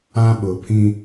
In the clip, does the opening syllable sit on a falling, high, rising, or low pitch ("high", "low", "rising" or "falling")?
high